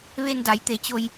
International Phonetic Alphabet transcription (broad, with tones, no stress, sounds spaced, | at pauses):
ʋ e˧ n d a˩˧ j t̪ e˩˧ t͡ɕ o˧ j